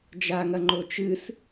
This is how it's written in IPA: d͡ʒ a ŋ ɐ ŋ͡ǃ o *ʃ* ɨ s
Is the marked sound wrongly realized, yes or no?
yes